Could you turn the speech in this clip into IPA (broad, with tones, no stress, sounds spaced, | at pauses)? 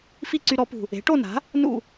f i˥˨ ǀ y˧ ɾ ɔ˩˥ p ṳ˨˩ | e̤˩˥ ʈ o˥˨ n a̤˩˥ | n ṵ˥˨